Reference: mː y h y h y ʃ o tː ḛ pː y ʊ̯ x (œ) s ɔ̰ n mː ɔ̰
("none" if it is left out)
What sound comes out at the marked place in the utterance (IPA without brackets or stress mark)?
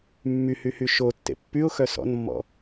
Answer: œ